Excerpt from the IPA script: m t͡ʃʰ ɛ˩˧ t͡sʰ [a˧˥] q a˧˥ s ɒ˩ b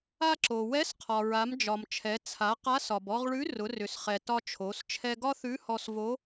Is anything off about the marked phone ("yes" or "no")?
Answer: yes